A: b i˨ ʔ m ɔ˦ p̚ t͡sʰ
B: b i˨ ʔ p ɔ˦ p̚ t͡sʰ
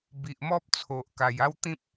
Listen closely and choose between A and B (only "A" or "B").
A